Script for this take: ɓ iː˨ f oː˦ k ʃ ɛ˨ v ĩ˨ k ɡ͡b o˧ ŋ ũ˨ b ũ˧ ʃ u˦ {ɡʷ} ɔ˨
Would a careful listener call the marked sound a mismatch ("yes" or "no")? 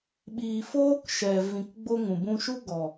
yes